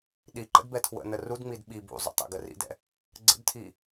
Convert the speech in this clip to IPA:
ɗ i ǃ ə̰ d b ɛ tʰ w ə̰ n ə r u d ŋ͡m i d ɓ i b ṵ zˤ ṵ tˤ ɛ̰ ɡ ə r ḭ d ɛ̰ | ɡ͡ǀ ə̰ d tʰ i

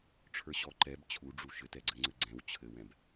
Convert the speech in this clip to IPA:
ʈ͡ʂʰ ə˞ ɕ ɔ ǃ ɛ b t͡ɕʰ u ɖ͡ʐ u ʃ ɘ t ɛ ɡ͡ǀ ɘ ŋ͡ǀ ɘ ɡ͡ǀ ɛ̃ w t͡ɕʰ ɘ w ɛ̃ b

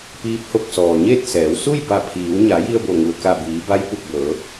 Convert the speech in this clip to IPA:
p iː˧˥ p̚ h o˧ k̚ s ɔː˩ ɲ e˥˨ t̚ s ɛː˩˧ w s u˥˨ j b a˧˩ pʰ iː˩˧ w ɲ a˩˧ j i˧ ə̯ b o˧˩ ŋ u˩ ə̯ k a˧˩ b iː˩˧ b a˧˥ j p u˧˩ k̚ b ɤː˩˧

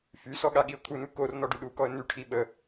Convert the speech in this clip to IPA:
f y s ɔ ɠ a ɠ i ʊ̯ kʰ u n u k o r n ɔ ɖ y ɗ u k ɔ ə̯ n y ʈʰ i ɓ ə

